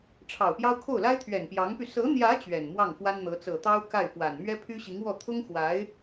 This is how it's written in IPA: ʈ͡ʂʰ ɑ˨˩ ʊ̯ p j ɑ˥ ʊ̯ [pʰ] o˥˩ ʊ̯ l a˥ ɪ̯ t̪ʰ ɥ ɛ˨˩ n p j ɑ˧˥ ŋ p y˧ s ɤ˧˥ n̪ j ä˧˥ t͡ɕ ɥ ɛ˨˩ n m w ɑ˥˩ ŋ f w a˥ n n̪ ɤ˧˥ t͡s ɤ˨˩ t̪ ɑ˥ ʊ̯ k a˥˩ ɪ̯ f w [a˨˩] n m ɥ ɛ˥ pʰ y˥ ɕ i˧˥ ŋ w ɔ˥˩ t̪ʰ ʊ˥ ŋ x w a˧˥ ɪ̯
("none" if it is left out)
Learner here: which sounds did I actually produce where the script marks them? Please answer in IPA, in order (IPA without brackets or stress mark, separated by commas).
kʰ, a˨˩